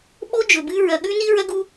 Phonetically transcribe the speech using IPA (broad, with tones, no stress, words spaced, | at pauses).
ɓo˦ d͡ʒɵ˨bɨ˦ ɹɐ˨ɠʉ˦ni˦ ɹɐ˦ɡu˦